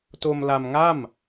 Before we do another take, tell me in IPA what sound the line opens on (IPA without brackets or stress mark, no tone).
t